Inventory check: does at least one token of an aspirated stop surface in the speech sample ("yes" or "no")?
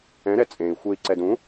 no